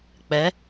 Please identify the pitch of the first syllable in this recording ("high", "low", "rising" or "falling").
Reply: rising